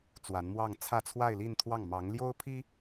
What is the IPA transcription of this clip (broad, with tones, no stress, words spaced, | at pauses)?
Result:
t͡swa˧˥nmwɑ˥˧ŋ t͡sʰä˥˧t͡sʰwa˥˧ɪ̯li˥˧nt̪ʰwɑ˥˩ŋ mɑ˧˥ŋljo˥ʊ̯pʰi˥